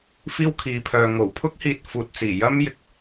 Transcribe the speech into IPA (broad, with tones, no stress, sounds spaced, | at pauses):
f iː˥ w kʰ iː˨˧ pʰ œː˨ ŋ o˨˩ w pʰ ʊ˥ k̚ h iː˨ t̚ f uː˨ t̚ t͡s iː˨˩ j ɐ˥ m j ɪ˨ k̚